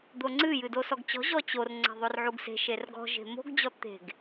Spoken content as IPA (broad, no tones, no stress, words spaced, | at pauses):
d̪oŋ͡ǀɨ jɨdosɔɡt͡ɕɔ̤ ʑɔt͡ɕor ŋ͡ǀɛ̤ðˤorʕuɡse̤ ʃerɡɔ̤ ʒe̤mo̤ɡ d͡ʑɔt̪e̤ɡ